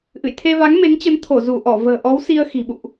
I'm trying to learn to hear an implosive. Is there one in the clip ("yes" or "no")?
yes